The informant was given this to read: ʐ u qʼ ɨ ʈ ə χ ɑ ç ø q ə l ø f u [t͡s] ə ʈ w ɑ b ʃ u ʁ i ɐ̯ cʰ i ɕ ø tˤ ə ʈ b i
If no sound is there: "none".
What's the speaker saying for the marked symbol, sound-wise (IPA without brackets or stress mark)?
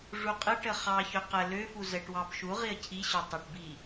z